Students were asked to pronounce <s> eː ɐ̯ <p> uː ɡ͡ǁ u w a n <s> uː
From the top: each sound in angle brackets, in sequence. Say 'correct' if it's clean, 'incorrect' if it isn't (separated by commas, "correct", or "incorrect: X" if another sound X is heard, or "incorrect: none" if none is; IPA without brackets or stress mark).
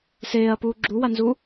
correct, correct, incorrect: z